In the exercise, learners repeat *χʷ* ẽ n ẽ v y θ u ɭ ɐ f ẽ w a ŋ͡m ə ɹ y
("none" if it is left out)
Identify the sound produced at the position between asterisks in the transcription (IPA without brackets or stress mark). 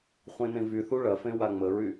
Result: χʷ